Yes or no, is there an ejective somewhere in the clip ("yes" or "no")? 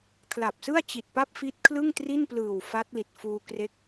no